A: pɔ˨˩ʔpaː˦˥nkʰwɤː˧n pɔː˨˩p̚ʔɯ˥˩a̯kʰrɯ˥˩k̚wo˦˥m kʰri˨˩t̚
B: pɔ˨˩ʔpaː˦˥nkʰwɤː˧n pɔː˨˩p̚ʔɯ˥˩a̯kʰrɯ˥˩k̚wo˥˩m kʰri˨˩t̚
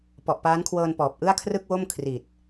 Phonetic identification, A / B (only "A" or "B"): B